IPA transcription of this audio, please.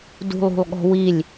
d ṳ lˠ ṳ lˠ ɠ ɔ̤ w i lʲ

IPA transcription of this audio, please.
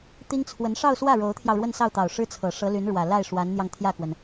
t̪ i˥ ŋ t͡sʰ w ə˧˥ n ʂ ɑ˥˧ ʊ̯ s w ä˥˩ ɻ o˧˥ ʊ̯ t̪ʰ j ɑ˧ ʊ̯ ɻ w ə˥˧ n s ɑ˥˩ ʊ̯ t̪ ɑ˨˩ ʊ̯ ʂ ɻ̩˥ t͡sʰ ɤ˨˩ ʂ ɤ˧˥ l y˧˥ n ɻ w ä˨˩ l a˥˩ ɪ̯ ʂ w a˧˥ n n̪ j ɑ˧ ŋ t̪ʰ j ä˥˩ k w ə˩ n

